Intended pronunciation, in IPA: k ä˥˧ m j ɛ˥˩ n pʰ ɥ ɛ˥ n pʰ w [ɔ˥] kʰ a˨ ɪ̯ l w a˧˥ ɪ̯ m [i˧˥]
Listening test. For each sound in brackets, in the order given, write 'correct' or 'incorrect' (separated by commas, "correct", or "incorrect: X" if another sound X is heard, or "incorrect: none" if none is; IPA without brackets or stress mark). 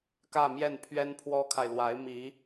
correct, correct